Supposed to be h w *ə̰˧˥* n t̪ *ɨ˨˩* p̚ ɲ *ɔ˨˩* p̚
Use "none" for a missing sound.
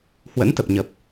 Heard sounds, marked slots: ə̰˧˥, ə˨˩, ə˨˩

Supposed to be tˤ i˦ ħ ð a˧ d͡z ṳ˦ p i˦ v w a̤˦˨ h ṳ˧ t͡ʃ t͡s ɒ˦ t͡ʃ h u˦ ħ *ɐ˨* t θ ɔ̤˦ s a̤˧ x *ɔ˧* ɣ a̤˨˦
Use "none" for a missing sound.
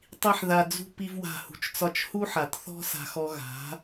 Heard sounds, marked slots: a˨, ɔ˧

